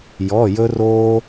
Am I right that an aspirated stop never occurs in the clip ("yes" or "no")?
yes